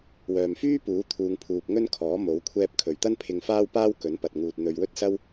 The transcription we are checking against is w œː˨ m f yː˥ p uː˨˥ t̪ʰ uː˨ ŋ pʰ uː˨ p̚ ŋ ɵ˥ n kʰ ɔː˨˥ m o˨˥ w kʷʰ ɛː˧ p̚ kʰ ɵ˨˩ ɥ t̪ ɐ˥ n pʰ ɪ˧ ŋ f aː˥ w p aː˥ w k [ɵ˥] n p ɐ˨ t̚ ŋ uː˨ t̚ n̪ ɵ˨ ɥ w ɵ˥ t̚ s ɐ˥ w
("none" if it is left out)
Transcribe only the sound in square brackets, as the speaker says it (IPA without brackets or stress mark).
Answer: ɵ˨˥